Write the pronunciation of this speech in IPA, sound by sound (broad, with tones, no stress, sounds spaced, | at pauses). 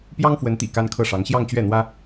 p j ɑ˥ ŋ f w ə˧˥ n t̪ ḭ˨˩ k a˥ n kʰ ɤ˥˩ ʂ ɑ˧˥ ŋ ɕ j ɑ˥˧ ŋ t͡ɕ ɥ ɛ˥˩ n̪ w ä˥